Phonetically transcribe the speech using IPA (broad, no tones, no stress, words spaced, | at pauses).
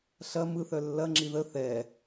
ɬɐ mɯθœ lːɐŋ͡ǁi ðə θɛ